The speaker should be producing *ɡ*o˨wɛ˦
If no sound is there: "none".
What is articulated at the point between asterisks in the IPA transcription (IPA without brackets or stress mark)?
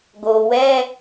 ɡ